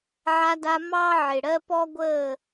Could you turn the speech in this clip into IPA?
ʕ a˧ d a˧ m ɑ˦ ʕ ɪ˨ ɽ ɜ˦ p ɔ˦ ɡʷ əː˦˨

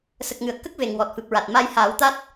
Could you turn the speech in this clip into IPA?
s ə˨˩ k̚ ŋ ɨ˨˩˨ ə̯ k ə˦˥ k̚ v e˨˩ ŋ w ɔ˨˩ t̚ f ɨ˨˩ p̚ ɹ a˨˩ t̚ m a˧ j h aː˨˩˦ w t̪ a˦˥ t̚

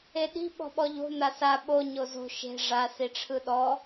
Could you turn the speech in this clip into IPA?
e ɗ i̤ ɓ ɔ̤ ɓ ɔ ʎ o̤ n̪ a s a ɓ o ɲ o z o̤ ʃ e̤ ʐ a s i ʈ͡ʂʰ ɯ ɗ ɔ

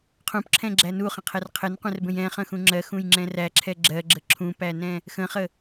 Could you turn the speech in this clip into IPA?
qʰ ũ p ǁʰ ɛ̃ ɡ͡ǁ æ n u χ ə̃ qʰ ɛ r qʰ ɘ n qʷ ɛ̃ r b ə̃ j ɛ̃ χ ə̃ x ũ ŋ͡ǁ ɜ x ũ j ŋ͡ǁ ɛ̃ r æ ǁʰ ɛ ɡ͡ǁ ɜ ɡ͡ǁ ə ǁʰ ũ p æ n ɛ̃ | x ə̃ χ ə

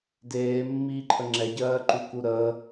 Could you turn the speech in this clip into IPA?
d eː mː iː ǃʰ ə ŋ͡ǁ ɛ ɟ ɜː ǃ u k u ɾ ə

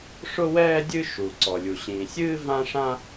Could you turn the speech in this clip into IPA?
ʂ ʊ˦ w ɛː˦ dʲ ɨ˦ ʃ u˩ ǀ ɔ˩ lʲ u˩ ɕ ĩː˩ sʲ ɨː˦ v ã˦ ʂ ã˦

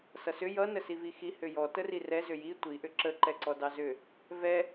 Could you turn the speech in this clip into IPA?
s ʌ s ʏ j ʌ n ə s i v i x i h ʏ j ɔ t ə r i r ɛ z ʏ j i tʷ i ʔ ʏ ǁ ə ǃ ɛ ǀ ɔ d ɑ z ʏ | v ɛ

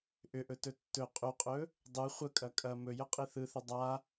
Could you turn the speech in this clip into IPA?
ʔ ʏ ʔ ɵ t ɵ tː ɵ qʼ ʏ qʼ ɵ | dˤ ɯ χʷ ə kʼ ɐ kʼ ɐ m ɵ j ə qʼ i θ ɯ θ ʏ dˤ a

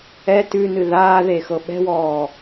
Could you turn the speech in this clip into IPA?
ɛ t ʉ n ɨ ð aː ð e x ɤ ɓ ɛ̤ w ɔː

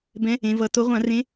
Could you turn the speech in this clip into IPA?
b ɛ̃˨˦ | ẽ˨˦ v ʌ˨˦ t o˨˦ ʁʷ ã˧˩˧ r ẽ˨˦

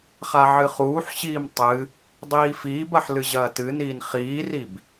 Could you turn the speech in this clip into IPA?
χ a ʕ ɨ χ uː ħ ɕ iː m tˤ ɨ | dˤ iː f iː b ɐ ħ l ɨ ʑ ɐː t ɨ n iː n χ iː r i b

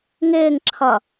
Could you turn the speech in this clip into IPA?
ŋ ɪː ŋ ǁʰ ʌ

